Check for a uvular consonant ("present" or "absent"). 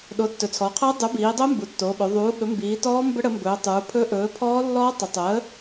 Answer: present